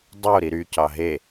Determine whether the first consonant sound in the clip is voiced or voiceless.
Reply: voiced